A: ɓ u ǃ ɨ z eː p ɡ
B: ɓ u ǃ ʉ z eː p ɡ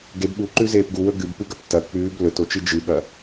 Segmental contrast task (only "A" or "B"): B